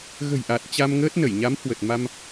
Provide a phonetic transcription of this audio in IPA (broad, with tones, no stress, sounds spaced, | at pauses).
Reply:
ɣ ə̤˨˩ j ʔ a˨˩ t̚ t͡ɕ a˧ m ŋ əː˦˥ t̚ n ə˧˩ j ɲ a˨˦ m h w ə˨˩ t̚ m a˧ m